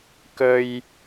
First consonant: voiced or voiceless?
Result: voiceless